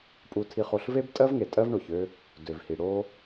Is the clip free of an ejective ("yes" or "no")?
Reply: no